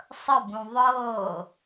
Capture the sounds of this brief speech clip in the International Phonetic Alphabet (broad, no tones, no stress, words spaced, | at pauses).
sˤəbũ ðˤɤː